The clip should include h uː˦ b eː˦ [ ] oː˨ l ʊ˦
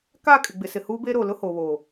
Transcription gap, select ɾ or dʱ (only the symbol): ɾ